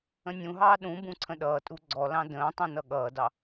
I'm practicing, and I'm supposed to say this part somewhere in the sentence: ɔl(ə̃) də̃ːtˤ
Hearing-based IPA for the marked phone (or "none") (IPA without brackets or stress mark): ɑ̃